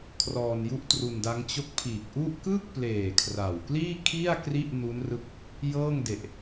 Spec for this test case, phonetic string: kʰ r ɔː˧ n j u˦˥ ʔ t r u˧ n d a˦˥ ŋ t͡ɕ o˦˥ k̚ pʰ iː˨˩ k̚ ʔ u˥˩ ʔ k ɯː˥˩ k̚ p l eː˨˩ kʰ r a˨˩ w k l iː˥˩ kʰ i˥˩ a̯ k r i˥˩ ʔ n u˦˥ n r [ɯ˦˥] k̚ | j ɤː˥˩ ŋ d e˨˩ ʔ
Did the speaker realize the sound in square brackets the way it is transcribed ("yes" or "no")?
yes